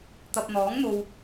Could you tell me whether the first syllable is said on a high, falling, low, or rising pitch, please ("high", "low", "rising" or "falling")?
low